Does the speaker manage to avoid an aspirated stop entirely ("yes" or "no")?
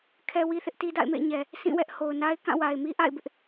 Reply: no